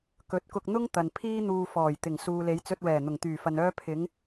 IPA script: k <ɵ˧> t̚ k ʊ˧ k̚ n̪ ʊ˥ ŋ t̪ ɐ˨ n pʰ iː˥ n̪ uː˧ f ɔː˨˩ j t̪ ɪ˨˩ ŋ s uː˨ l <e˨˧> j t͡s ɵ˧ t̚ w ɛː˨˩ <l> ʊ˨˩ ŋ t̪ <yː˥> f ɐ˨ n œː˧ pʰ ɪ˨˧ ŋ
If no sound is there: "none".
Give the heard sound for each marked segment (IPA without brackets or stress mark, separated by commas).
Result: ɵ˨˥, e˨˧, n̪, yː˨˩